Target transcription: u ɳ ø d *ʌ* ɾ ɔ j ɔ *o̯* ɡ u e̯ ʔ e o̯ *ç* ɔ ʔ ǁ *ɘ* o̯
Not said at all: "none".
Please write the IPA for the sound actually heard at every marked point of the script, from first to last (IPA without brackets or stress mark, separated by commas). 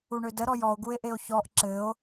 ə, o̯, ç, ɘ